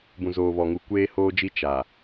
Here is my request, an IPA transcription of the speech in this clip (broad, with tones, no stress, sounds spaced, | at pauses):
b ũ˨ z oː˨ β ɔ˨ ŋ u˨ kʷ eː˦ h oː˦ d͡ʒ i˦ t͡ʃ a˨